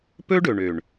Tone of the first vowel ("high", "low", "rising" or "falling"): high